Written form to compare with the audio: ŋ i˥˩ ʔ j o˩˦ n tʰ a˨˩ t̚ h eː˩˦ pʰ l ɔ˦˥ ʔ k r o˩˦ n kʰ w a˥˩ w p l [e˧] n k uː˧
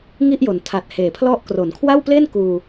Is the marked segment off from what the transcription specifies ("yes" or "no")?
yes